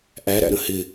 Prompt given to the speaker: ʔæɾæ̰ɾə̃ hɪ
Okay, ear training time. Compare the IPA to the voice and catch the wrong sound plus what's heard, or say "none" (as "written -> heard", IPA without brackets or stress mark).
none